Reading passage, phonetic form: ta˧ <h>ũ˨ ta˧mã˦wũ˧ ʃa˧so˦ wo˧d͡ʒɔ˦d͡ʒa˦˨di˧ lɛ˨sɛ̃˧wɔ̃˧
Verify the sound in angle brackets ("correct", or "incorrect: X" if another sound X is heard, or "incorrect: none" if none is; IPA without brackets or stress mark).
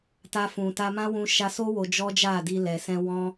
incorrect: f